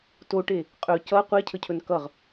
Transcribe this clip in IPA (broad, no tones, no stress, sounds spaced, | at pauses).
t o ʈ e | qʼ ɵ c ʌ qʷ e cʰ ə cʰ ɵ n k ʌ ʁ